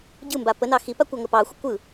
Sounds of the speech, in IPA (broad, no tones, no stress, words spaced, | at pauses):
ɟɯmba pənɑ xipa kʷaŋəpɑxʷə kʷɯ